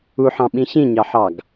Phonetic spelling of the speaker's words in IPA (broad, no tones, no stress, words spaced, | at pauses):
uħɑ̃ɓĩ ɕĩɲɑħɑɡ